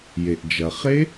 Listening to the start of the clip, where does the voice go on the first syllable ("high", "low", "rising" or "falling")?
low